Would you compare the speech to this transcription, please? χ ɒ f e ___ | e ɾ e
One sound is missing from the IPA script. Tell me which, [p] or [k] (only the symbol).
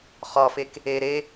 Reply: k